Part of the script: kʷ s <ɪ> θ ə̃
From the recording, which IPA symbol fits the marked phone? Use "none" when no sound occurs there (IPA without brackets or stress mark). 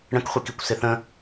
ɪ